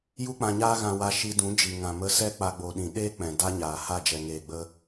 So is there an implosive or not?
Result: yes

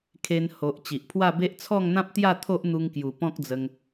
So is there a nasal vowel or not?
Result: yes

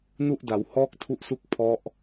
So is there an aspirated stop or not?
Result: yes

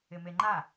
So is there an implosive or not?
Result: no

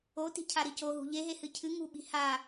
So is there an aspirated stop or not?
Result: yes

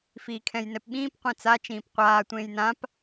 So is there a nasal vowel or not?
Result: yes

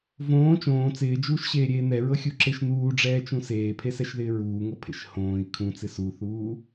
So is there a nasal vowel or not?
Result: yes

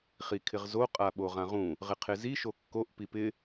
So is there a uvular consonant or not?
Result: yes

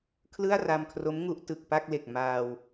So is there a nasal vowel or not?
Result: no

